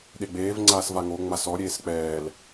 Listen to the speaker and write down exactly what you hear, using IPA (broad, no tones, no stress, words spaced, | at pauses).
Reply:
ɗeɡ͡beːv ŋ͡ǀaːsvaŋo ŋ͡masɔ ɾʲeːsk͡pɛːl